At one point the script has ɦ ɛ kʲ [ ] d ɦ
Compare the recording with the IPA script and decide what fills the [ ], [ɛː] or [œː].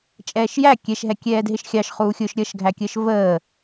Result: ɛː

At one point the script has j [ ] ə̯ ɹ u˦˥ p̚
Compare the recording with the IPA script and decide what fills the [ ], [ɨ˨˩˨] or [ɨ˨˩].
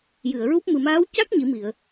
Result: ɨ˨˩˨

